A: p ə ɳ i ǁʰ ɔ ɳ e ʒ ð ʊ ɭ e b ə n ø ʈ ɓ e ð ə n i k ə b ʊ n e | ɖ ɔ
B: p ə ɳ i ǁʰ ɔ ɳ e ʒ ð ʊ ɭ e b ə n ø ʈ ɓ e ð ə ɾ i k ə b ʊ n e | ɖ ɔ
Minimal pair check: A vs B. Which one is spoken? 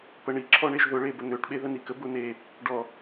A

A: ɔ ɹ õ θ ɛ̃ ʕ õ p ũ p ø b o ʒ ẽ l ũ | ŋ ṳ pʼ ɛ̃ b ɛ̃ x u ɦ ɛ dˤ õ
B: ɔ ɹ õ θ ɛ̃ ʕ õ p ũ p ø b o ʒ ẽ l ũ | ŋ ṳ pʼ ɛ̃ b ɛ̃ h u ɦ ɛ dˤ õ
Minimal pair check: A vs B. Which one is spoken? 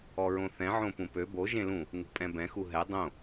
A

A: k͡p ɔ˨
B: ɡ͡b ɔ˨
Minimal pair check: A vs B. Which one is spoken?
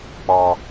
A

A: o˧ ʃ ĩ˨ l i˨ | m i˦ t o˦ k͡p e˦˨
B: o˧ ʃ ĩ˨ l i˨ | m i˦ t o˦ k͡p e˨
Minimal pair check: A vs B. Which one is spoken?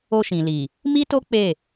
A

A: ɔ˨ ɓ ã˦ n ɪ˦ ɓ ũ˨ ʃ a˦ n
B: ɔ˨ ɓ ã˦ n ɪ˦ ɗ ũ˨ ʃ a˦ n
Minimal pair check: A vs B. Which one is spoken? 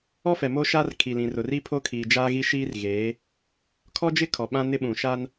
A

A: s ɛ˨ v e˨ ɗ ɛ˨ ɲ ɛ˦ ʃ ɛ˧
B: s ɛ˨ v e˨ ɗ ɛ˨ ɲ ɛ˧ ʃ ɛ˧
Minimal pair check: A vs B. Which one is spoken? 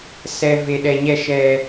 B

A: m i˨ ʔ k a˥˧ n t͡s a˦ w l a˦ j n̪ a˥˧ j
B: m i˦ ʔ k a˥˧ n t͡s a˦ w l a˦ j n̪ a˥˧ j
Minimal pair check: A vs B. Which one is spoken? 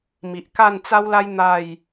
A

